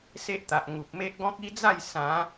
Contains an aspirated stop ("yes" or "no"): no